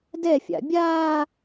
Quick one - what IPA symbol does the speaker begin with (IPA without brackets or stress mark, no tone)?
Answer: d